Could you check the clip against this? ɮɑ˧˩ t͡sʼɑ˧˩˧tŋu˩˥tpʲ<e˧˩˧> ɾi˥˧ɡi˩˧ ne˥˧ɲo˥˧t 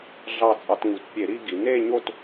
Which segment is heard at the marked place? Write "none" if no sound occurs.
e˧˩˧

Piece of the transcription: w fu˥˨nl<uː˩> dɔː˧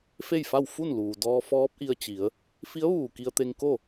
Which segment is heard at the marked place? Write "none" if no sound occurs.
uː˩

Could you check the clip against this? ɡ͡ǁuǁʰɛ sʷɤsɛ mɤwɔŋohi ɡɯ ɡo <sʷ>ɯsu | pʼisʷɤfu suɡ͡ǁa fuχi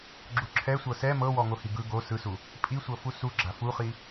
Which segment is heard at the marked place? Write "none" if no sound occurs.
s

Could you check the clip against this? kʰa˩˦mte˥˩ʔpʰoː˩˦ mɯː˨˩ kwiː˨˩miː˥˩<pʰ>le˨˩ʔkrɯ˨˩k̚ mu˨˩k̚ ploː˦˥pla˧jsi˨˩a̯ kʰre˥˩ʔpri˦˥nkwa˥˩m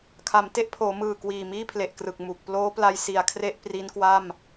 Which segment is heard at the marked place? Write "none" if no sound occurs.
pʰ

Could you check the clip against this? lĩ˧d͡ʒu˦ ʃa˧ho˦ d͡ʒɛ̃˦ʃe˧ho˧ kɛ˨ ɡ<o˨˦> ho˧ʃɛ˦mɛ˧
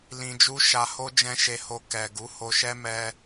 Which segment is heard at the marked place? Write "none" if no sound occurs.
u˨˦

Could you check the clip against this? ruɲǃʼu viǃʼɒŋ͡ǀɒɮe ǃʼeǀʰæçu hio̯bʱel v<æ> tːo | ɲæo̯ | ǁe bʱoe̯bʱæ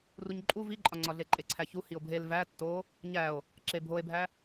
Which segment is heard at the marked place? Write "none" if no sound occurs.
æ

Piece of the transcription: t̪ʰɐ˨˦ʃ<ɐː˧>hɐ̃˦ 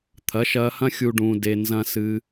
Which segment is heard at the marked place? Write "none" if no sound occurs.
ɐː˧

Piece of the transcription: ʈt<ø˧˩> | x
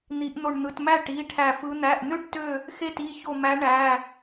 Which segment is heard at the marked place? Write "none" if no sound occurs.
ø˧˩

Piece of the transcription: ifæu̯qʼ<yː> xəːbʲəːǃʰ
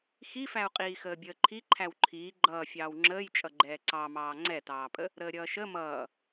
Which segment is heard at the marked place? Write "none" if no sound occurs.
iː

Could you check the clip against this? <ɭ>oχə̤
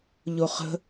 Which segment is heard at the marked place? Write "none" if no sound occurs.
ʎ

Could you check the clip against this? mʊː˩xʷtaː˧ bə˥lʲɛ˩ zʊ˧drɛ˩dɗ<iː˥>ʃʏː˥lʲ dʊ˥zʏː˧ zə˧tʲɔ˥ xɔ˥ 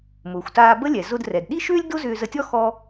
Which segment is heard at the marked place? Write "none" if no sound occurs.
i˥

